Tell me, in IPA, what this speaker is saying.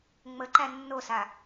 ŋ͡mə ǃænːosa

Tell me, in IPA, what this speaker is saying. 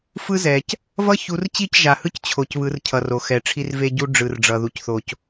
fɯ˦zɛ˨c | vʌ˦çu˨˦rt͡ɕi˦˨c ʒa˨hɯ˦c t͡ɕʰo˨cβɯ˨˦rcʰʌ˨r o˨xɛ˨ ʈ͡ʂʰi˦rve˦ɟu˦ ɖ͡ʐɯ˨rɖ͡ʐʌ˨ðu˨cθo˨c

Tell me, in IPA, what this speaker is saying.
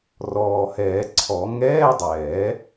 rɔː˨˩hɛː˨˩˦ǀʰɔ˨˩˦ ŋɛː˧˥˧dˤɛ˨˩˦

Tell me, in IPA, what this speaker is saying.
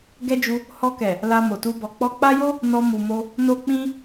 ɡɛ˦d͡ʒu˧ | hɔ˧kɛ˨ | la˧mo˨tu˧ bɔ˨k͡pɔ˧k͡pa˦jo˦ | nɔ˧ mu˨mo˧ | no˦k͡pĩ˦

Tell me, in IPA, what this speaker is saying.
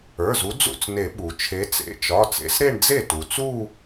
ə˞˩˧˩zu˨˦ d͡zṵ˥˩t͡sne˨˩˦ ɓu˩ t͡ʃʰe˨˦t͡sḛ˩˧˩t͡ʃɒ˩˧˩ t͡sḛ˨˦sɾe˥˧ɳ d͡ze˥˩tu˩t͡su˥˧

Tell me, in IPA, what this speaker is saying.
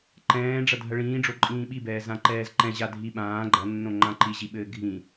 ǃɛ̃ː ɖ͡ʐɐdʱɐɭĩː ɖ͡ʐoǃʼĩːɓibɛː zãǃɛːzǃɛ̃ ʑadʱi ɓãː ɡ͡ǃɐnːõ ŋ͡ǃãǃiʑiɓɘː ɡʱĩ

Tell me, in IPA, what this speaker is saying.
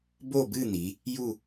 bo˥˧bɨ˥˧n̪i˩˧ | ju˥˧

